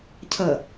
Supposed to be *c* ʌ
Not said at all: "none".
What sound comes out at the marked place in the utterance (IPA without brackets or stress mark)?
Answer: cʰ